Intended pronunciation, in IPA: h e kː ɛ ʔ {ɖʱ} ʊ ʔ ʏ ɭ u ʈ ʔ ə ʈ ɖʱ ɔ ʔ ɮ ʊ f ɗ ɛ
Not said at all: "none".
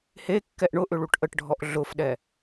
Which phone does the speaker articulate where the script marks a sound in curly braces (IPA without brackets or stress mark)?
ɳ